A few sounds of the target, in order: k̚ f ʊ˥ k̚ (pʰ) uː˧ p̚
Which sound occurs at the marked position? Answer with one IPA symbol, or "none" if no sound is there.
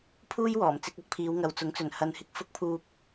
pʰ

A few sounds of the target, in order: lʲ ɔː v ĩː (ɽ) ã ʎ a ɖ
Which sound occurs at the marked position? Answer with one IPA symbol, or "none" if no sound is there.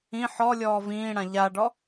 ɽ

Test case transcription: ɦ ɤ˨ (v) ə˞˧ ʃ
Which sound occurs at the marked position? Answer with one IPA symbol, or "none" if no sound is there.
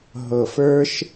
f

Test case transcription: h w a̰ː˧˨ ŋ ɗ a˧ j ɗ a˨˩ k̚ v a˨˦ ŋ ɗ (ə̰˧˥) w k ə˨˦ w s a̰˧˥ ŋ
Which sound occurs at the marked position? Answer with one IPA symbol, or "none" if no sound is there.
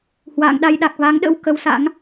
ə̰˧˥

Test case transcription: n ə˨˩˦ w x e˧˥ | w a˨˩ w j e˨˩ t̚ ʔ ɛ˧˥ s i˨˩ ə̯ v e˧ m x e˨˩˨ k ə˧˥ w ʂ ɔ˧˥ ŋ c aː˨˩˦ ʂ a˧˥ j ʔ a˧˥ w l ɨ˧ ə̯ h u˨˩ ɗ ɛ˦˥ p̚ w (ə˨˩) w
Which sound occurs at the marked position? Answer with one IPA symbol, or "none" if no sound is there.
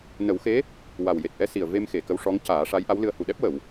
ə˨˩˨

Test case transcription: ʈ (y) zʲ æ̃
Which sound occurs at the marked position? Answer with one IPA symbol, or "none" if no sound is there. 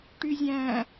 y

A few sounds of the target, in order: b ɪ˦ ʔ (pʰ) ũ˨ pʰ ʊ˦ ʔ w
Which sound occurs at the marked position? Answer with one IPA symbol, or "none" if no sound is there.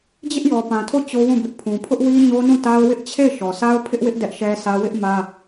pʰ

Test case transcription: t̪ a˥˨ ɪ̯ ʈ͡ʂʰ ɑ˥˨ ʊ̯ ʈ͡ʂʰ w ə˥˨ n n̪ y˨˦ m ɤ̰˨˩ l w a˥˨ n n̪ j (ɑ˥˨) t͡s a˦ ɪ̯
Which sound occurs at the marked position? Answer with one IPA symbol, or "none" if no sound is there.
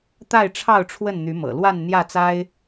ä˥˨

